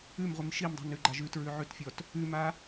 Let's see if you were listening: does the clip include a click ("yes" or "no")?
yes